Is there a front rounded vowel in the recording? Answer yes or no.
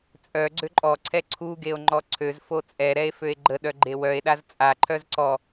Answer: yes